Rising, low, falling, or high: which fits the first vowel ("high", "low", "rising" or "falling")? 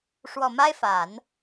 low